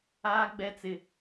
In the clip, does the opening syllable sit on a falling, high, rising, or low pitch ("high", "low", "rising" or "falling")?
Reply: high